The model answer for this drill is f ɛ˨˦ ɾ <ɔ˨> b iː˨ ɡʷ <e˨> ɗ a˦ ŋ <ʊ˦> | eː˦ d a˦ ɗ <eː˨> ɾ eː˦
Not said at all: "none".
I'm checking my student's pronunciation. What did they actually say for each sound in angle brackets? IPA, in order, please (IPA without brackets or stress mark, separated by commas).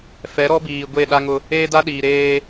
ɔ˦, e˦˨, ʊ˦, iː˨